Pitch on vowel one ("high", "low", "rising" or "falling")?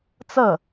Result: falling